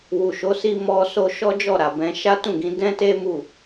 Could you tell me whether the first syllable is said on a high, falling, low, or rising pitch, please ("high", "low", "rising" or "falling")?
low